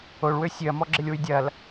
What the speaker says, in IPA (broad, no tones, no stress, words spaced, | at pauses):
oɭwø sʲøɐ̯mɔɡ͡ǁɪlʲwy dʲɐl